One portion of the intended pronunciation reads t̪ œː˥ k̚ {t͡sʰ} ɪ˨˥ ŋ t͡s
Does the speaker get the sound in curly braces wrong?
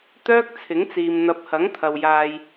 no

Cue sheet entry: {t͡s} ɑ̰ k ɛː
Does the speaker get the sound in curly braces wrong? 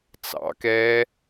no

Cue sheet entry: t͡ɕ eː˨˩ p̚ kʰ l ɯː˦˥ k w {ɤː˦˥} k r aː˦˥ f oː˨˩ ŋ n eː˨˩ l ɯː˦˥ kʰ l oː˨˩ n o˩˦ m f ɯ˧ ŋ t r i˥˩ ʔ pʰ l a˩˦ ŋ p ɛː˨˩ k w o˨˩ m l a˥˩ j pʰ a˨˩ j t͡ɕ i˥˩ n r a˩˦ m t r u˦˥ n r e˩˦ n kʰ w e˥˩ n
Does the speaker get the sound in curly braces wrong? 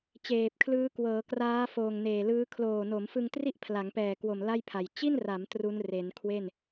yes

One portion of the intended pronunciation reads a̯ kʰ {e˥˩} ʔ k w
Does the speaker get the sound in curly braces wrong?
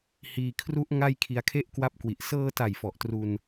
no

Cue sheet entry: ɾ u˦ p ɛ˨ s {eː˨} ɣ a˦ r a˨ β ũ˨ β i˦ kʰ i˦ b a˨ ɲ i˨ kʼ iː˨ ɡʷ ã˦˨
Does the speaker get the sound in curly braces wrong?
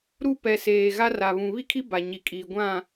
no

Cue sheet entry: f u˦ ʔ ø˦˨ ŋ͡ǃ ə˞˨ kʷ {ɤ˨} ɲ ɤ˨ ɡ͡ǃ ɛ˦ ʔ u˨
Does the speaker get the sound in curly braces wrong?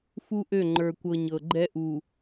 no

